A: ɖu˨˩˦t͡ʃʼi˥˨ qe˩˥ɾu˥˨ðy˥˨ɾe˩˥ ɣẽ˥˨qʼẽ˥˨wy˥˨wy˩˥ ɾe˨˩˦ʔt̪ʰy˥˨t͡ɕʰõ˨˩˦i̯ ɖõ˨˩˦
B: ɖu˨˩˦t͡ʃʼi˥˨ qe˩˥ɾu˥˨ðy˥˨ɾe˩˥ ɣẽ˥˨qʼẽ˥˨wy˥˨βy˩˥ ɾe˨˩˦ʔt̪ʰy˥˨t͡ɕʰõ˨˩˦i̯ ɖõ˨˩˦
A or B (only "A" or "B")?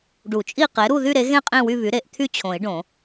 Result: B